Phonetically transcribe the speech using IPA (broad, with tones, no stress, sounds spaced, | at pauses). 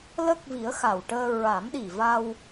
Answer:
l ə˦˥ k̚ v i˨˩˦ ə̯ x a˨˩ w ʈ əː˧ ɹ a˨˩˦ m ɗ i˨˩ v a˧ w